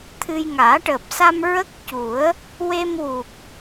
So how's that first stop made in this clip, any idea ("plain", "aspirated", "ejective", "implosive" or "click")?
aspirated